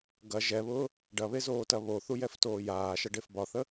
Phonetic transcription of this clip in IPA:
ɡ ɐ ʒ ɛ β ʊː | ɖ ɐ β e z oː t ɐ β o θ u j ɛ f t oː j aː ʃ ɐ ɖ e f b ɒ θ ə

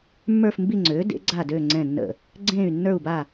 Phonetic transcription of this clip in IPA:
mː ə˞˦˨ f m b i˦˨ ŋ͡ǀ øː˩˥ d ḛ˩˥ ɡ͡ǀ aː˦˨ d øː˦˨ ŋ͡ǀ ɛ̃˦˨ nː ə̰˦˨ | ɡ͡ǀ ẽː˦˨ y̯ nː ə˞˦˨ u̯ b a˦˨

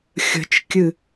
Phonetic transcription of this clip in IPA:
xʲ ə̤ t͡ʃ kʲ ɨ

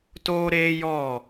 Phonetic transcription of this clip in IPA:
t oː˦ ɾ eː˦ j ɔ˦˨

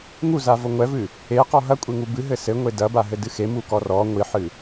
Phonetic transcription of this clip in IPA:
ŋ u z a v o ŋʷ ɛ v ɨ | e q ɔ ɦ ɐ kʷʼ e ŋ u b ɨ ɦ ɘ s ɘ ŋʷ e d ɐ b a ɦ ɘ d ɨ x e m u k ɔ r ɔ ŋʷ i ħ ɨ

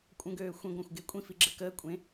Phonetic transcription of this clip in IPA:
kʷʼ ə̃ ɡ øː xʷ ẽ ɡʷ œ̃ xʷ ɡ e kʷʼ ĩ f i ɡ͡ǁ ə k əː kʷʼ ẽ

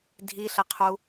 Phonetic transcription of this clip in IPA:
dʱ i ɬ ə qʰ u

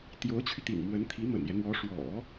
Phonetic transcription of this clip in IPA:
t̪ j o˧˥ ʊ̯ t͡ɕʰ y˧ t̪ ḭ˨˩ ŋ m w ə˧˥ n t̪ʰ i˧˥ m ə̰˨˩ n j ɛ˦ n̪ w ɔ˧˥ ʂ w ɔ̰˨˩˦

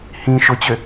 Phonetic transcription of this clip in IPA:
h ĩ ʃ ʊ t͡ɕ ø

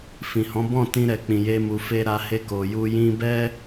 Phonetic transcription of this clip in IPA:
f ĩ˨ h ɔ̃˨˦ b ɔ̃˦˨ t ĩ˧ ɾ ɛ˨ k͡p ĩ˨ j e˧ m u˨ f e˧ ɾ a˧ h e˧ k o˨ j u˧ j ĩ˧ b ɛ˦

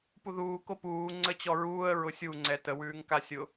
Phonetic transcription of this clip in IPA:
p u ð uː k o p uː ŋ͡ǀ ə t͡ɕ ɔ ɹ uː ə̯ ɹ ʊ sʲ u ŋ͡ǀ ɛ t ə w ʉː ŋ k a sʲ ʊ

